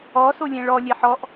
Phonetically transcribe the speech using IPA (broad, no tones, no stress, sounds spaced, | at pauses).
ɔ s o lʲ ɛ̃ ɭ ɔ lʲ ɛ ħ ɔ ʔ